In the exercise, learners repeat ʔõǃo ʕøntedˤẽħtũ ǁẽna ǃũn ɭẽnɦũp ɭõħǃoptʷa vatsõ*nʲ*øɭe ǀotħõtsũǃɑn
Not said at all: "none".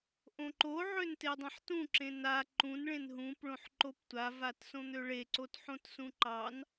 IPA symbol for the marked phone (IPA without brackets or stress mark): n̪